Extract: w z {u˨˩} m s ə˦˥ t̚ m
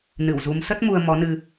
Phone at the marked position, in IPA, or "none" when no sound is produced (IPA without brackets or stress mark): u˨˦